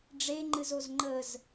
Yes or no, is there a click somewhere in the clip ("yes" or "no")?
yes